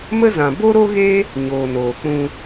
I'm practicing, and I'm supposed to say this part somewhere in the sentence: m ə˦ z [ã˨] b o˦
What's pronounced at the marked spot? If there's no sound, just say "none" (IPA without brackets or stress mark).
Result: ã˨